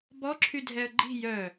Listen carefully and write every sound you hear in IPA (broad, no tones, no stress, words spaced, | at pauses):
bɔ ǁʰydʱɛə̯ɡ͡ǃi̤ jœ